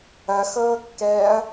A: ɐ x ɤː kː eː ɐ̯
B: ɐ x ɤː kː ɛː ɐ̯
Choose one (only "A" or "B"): B